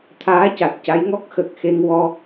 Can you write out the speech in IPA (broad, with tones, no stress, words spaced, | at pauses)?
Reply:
t̪ʰaː˧˥ca˨˩t̚ca˧˥jŋɔ˦˥k̚ xə˨˩k̚xe˧ŋ wɔ˧